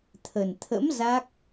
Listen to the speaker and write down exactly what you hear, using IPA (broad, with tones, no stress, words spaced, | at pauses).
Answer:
t̪ʰə˨˩n t̪ʰə̰˧˥m za˦˥k̚